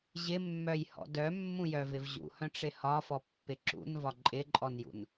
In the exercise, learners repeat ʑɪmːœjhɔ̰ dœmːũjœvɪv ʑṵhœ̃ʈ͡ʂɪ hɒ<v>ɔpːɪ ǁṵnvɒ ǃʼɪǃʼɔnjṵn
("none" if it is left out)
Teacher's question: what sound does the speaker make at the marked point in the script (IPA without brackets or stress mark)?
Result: f